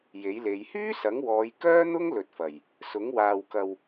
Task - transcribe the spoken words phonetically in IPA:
j e˨˥ j l e˨˧ j h yː˥ s ɐ˨˥ ŋ w ɔː˨˧ j k œː˥ n̪ ʊ˥ ŋ l ɵ˨ t̚ f ɐ˨˩ j | s ʊ˨˥ ŋ w aː˨ w k ɐ˨ w

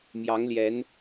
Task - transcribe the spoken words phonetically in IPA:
m j ɑ˧˥ ŋ l j ɛ˧˥ n

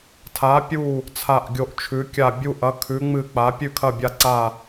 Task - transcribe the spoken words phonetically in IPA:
tʰ a˨˥ pʲ u˦˨ | t͡sʰ a˦˨ ʔ ɡʲ o˦˨ ʔ t͡ʃʰ ʉ˨˥ kʲ a˦˨ bʲ u˦˨ ʔ ɐ˨˥ kʰ ʉ˨˥ ŋ͡m ɨ˦˨ k͡p a˨˥ pʲ ʉ˦˨ kʰ ɐ˦˨ bʲ a˦˨ ǀ a˦˨

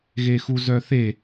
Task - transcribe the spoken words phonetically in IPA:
ɣ e x u z œ θ e

